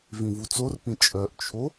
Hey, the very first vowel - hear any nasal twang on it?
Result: yes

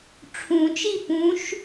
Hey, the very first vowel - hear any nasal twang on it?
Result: yes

